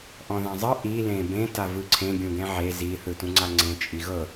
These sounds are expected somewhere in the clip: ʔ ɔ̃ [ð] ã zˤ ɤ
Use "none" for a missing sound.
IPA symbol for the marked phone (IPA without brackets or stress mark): ð